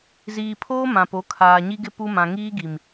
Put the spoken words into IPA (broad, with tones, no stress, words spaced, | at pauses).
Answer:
ziː˨pʰoː˦ mã˨po˨˦ kʰaː˨ɲi˦ɡɪ˦ pu˦mã˨ ŋiː˦ɡi˨m